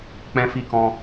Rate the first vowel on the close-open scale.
mid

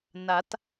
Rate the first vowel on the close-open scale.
open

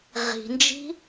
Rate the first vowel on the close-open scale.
close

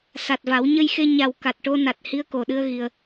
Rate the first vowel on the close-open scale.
open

